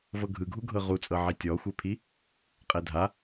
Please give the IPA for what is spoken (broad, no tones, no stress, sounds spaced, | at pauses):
v ɤ ɡʱ ɯ ɡʱ u ɡʱ ɤ ʁ u t͡sʼ ɤ ʕ i tʲ ɔ xʷ e pʰ i | qʼ ɛ dʱ a